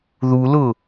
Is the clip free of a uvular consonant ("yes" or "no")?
yes